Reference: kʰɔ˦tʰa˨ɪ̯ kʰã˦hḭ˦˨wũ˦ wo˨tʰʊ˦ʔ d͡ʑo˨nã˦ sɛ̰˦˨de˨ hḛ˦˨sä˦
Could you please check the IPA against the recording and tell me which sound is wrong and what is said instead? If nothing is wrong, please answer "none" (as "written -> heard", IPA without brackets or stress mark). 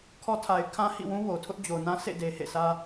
ɛ̰˦˨ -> ḛ˦˨